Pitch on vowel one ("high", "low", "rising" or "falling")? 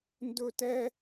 high